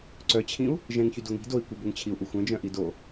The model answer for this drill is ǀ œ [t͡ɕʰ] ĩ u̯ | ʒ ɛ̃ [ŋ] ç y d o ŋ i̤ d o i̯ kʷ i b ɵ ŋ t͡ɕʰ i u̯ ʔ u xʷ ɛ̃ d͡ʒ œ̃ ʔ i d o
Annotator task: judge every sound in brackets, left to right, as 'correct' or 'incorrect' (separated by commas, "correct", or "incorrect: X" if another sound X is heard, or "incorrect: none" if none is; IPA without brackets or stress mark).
correct, correct